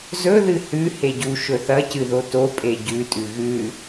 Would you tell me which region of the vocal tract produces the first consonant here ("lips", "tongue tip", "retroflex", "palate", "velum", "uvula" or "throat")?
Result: tongue tip